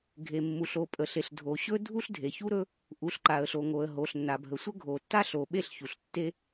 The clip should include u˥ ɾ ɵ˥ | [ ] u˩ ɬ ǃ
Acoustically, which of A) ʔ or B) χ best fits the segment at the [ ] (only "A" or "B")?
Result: A